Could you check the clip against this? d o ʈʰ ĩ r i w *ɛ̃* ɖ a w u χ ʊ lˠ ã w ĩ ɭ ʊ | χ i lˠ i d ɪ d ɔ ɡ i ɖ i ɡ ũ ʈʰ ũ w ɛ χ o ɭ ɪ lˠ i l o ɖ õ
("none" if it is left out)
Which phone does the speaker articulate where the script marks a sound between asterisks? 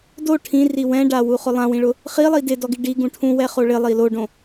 ɛ̃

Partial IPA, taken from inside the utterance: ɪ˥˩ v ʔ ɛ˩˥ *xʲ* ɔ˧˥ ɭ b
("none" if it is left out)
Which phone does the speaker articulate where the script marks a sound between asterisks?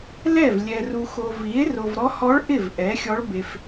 xʲ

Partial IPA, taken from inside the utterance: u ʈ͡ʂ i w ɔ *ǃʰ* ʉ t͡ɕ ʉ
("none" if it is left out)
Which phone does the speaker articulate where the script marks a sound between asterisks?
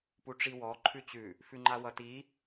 ǃʰ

